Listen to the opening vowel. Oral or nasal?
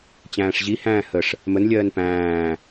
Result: nasal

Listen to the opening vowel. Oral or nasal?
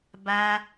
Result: oral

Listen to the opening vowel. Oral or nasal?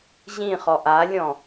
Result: nasal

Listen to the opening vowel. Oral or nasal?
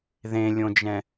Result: nasal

